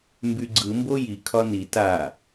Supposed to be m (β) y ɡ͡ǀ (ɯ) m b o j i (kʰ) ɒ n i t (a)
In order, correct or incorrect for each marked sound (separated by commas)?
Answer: incorrect, correct, correct, correct